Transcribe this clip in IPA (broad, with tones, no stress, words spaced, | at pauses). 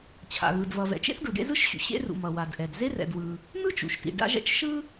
t͡ɕʰa̰˩ɣɯ˩d vʌ˩vɛ̰˩t͡ʃḛ˥θ ɖu˩ɖḛ˥zɯ˥ʃɕṵ˩ ɕḛ˥rṵ˩ mʌ˩wa˩dʔɛ˩d ze˥rɛ̰˩dwɯ˩ | n̪ɯ˥t͡ʃṵ˩ʃtḭ˩ ɖa̰˥ʒɛ̰˥t͡ʃ ʃɯ˥